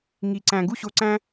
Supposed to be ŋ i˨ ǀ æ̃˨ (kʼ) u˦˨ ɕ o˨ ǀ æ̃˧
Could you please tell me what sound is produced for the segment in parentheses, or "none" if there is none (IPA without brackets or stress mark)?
ɡ